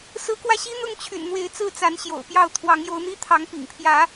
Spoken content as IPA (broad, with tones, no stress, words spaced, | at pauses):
sɹ̩˨˦kwä˧ɕi˦n̪ʊ˥˨ŋ t͡ɕʰy̰˨˩nn̪we˨˦ɪ̯t͡sɹ̩˥˨ t͡sa˨˦n ɕjo̰˨˩ʊ̯pjɑ˥˨ʊ̯ t̪ʰwɑ˨˦ŋjo˨˦ʊ̯n̪i˦ t̪ʰɑ˨˦ŋpḭ˨˩ŋpʰjä˨˦